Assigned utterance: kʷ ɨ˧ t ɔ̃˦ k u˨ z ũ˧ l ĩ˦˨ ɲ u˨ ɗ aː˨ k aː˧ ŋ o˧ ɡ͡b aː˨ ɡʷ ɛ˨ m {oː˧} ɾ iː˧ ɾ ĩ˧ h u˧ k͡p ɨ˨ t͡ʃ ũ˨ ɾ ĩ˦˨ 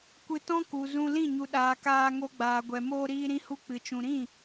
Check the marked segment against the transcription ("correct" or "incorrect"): correct